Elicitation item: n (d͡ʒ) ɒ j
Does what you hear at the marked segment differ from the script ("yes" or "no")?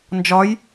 no